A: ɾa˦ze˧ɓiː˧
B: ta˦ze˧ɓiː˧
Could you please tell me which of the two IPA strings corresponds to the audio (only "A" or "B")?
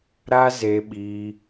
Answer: A